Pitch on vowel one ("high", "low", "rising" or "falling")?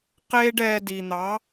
high